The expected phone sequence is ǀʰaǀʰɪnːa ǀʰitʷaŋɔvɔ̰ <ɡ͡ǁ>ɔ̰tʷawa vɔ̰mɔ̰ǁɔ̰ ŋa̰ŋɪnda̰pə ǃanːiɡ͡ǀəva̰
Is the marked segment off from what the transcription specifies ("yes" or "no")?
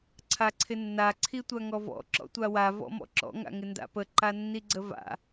yes